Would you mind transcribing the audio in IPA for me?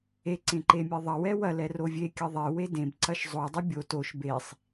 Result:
e ǀẽǃemʲeðˤɐ wɛwɐ lɛrovʲe kʲɐðˤe wedẽb ǀɐʃzˤo dˤobʲo toʃ besˤ

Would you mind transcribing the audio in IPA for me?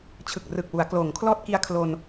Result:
t͡ɕʰɯ˨˩k̚rɯ˨˩k̚wu˩˦a̯ kloː˩˦ŋkʰlɔː˥˩t̚ki˧a̯ kʰlo˧n

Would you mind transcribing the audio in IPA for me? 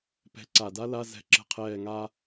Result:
pɛ̤˧˥ ǀa˨˩da˥la˧˥˧ zɛ̤˦˨ǁə̤˦˨qʰɛː˦˨ŋaː˥

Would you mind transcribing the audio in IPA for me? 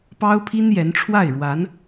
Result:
pɑ˥ʊ̯pʰi˥njɛ˧˥n ʈ͡ʂʰwa˥˩ɪ̯ɻwa˧˥n

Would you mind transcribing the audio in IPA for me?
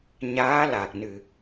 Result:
ɲaː˧˥la˨˩k̚nɨ˨˩

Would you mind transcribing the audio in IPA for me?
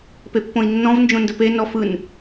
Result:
pepːõi̯nːɔ̃v nd͡ʒõndəpe nɔfɯn

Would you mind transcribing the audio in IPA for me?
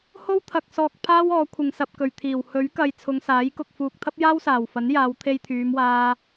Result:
ho˥wt̪ʰɐ˨k̚ sɔː˧k̚pʰaː˥wɔː˨˧ kʷʰɪ˨ŋsɐ˨p̚ kɵ˨˩ɥt̪ʰiː˨˩w hɵ˨˥ɥkɐ˨j t͡sʰʊ˨˧ŋsaː˨˥j kʊ˨k̚ fuː˨k̚t̪ʰɐ˥p̚jaː˥wsaː˨˩w fɐ˨˥njaː˨˧w t̪ʰe˧jt̪ʰyː˨˧mwaː˧

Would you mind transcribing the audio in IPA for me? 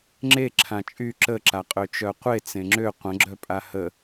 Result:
ŋ͡ǁe ǁʰãt͡ʃʼy ǁəǁaqʼø t͡ʃœqʷe t͡sẽŋ͡ǁø qʷə̃ɡ͡ǁœ pʼahə

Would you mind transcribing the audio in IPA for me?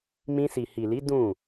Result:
mĩ˧si˨hi˨li˨˦ dũ˦˨

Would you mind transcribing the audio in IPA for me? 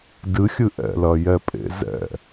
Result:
dɨxʲɨ ʔɛ̰lɐjɛpʼḛ zɛ̰

